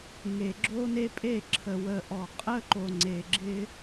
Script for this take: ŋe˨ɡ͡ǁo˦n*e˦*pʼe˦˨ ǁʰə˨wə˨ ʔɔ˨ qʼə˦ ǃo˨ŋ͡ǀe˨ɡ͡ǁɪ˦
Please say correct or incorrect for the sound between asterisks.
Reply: correct